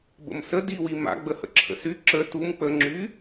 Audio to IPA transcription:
b ə̰ m s ə d i w i m a̰ ɡ͡b ə h ə̰ ǁʰ ə̰ s y ǁ ə t u m k͡p ə ŋ͡ǁ y

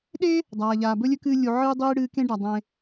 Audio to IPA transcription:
ɗ e˥ | dˤ aː˩ ʎ aː˩ b ɵ˥ lʲ ɵ˥ k ɨː˦ lʲ u˨ ʕ ɨː˥ dˤ iː˥ ɽ ɨː˦ k ẽ˥ ɖ a˩ dˤ ẽ˨

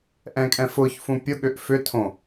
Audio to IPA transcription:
ʔ ɛ̃ kʼ ɛ̃ f ʊ ç f ũ pʲ ʊ ɠ ʏ ʔ f ʏ tʰ õ

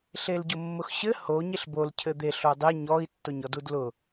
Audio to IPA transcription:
ɬ e l ɟ ʊ mː ʊ x ɕ ɘ h o ɲ e ɬ b o l cʰ ɘ d̪ e ɬ o dˤ e ɲ ɔ i̯ tː o ɲ ɔ d u d l ʊ

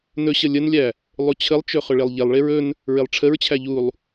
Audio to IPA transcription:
n ɵ ɕ ə lʲ ə n lʲ æ | lˠ u t͡ɕʰ ə lˠ t͡ʃ ɵ χ ɵ ɭ e lˠ ʎ e lˠ ɭ e ɹ ɵ n | ɹ e lˠ ʈ͡ʂʰ ə ɹ t͡ɕʰ æ ʎ u lˠ

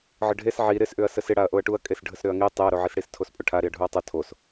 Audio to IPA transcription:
ʕ ə ɖʱ e s ʕ i ɾ ɪ s ʔ ʏ ɐ̯ s ə s ɪ ɽ a ɐ̯ ʔ o ɐ̯ ʈ u ɐ̯ kʼ e s ɖʱ ə s ɾ ʏ ɐ̯ ŋ i tˤ e ɐ̯ ɾ o ʕ i s ɽ i s tʰ o s pʼ ʊ ʈʰ a ɾ i ɐ̯ ɖʱ u ɐ̯ tˤ ʊ tʰ o s

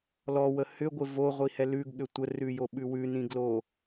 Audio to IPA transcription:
l ɔ w ə h ʏ ɡʷ ɪ v o ʁʷ i h ɛ l ʉ ɡ ɠ ʏ tʷ ə r ʉ j o ɓ ʉ w ʉ n ĩ ɡ l o

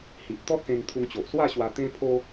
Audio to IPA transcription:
h i˨ ʔ t̪ ɔ˦ t̚ s ẽ˧ ŋ t̪ʰ u˧ ŋ t͡ɕ o˨ ʔ s w a˥˧ ɕ w a˧ t̪ ẽ˦ pʰ o˦

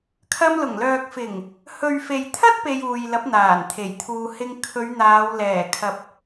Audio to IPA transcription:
kʰ ɐ˧ m l ʊ˨˩ ŋ l œː˨ k̚ f ɪ˨˩ ŋ | h ɵ˨ ɥ f e˨ j t̪ʰ ɐ˥ t̚ p e˧ j uː˨ j l ɐ˨˥ p̚ n̪ aː˨˩ n t̪ʰ e˨˩ j t̪ʰ uː˧ h ɪ˧ ŋ kʰ ɵ˨˧ ɥ n̪ aː˨˧ w l ɛː˨˩ kʰ ɐ˨ p̚

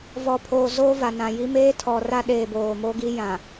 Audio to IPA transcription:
v ɔ˨ pʰ oː˨ z oː˦ v a˨ n ã˨ j i˦ m eː˦ tʰ ɔ˨ r a˦ ɗ eː˨ b oː˨ m o˦ ɡ i˦ j ã˨

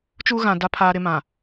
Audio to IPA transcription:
t͡ʃ u˦ ɣ ã˨ d a˦ pʰ aː˦ ɾ ɪ˦ m ã˨

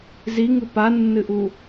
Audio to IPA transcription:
z i ŋ ɨ p a nː ɨ ʔ u

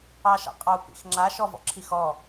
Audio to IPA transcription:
ɑ ʃ ɑ̰ qʼ ɑ u̯ p ḭ x ŋ͡ǁ a ʃ ɔ v ɔ̰ ǁʰ i x ɔ

